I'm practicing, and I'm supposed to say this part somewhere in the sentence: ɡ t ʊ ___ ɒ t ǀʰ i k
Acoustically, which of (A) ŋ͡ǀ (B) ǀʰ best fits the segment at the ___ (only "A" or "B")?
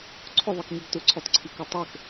B